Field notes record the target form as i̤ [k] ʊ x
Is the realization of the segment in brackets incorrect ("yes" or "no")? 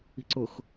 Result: yes